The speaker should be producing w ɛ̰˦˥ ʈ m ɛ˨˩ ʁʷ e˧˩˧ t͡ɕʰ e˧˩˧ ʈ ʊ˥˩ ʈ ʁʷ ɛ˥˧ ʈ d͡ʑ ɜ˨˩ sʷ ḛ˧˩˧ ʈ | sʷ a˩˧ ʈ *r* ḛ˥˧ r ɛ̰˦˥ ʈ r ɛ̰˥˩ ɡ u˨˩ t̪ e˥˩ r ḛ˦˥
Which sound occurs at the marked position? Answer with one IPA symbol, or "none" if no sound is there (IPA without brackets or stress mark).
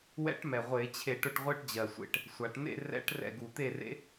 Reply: n̪